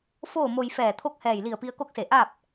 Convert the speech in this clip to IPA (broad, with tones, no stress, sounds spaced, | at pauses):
f oː˥˨ m o˧ j f ɛː˧˩ t̪ʰ o˥˨ k̚ h ɛː˧˩ j l i˧˩ ə̯ p i˧ ə̯ k o˥˨ k̚ s e˧˩ ʔ a˥˨ p̚